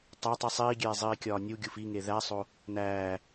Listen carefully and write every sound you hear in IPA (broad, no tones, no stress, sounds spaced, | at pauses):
tˤ æ tˤ i sˤ iː ɡʲ eː zˤ iː kʲ ɒː nʲ u ɡʲ u f i ŋ e ð æ sˤ o | n æː